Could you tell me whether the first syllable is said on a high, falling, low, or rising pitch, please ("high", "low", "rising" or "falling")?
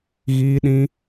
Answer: high